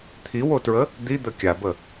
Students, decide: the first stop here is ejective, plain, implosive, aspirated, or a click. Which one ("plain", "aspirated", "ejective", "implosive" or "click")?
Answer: aspirated